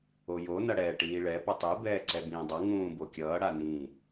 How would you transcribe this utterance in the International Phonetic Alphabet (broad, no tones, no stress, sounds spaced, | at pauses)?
o j o n ʌ ɽ ɛː ʈ iː ɭ ɛ p ʌ tˤ e b ɛː ǀ ɛ b ĩː dˤ ʌ ŋ ũː b o kʲ ʌː ɽ a n ĩ